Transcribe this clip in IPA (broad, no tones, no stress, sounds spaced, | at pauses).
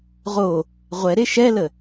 ʁ o | ʁʷ ɛ ɾ e ʃ ɛ l ə